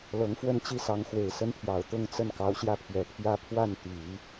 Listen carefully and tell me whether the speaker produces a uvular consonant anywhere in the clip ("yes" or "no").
no